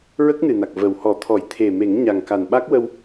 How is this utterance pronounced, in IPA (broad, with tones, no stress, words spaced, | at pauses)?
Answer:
ɹə˦˥k̚nɨ˨˩na˨˩k̚ və˨˩w hɔ˨˩˦t̪ʰɔ˨˩˦j t̪ʰe˨˩me˨˩˦ŋ ɲa˨˩ŋka˨˩nɓa˦˥k̚ wə˧w